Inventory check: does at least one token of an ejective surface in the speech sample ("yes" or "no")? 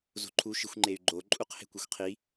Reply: yes